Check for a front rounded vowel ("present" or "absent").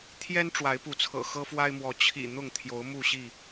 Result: absent